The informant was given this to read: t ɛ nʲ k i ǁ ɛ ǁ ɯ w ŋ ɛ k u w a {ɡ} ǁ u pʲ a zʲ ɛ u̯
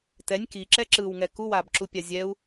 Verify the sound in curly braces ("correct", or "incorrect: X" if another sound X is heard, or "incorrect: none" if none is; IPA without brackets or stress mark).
incorrect: b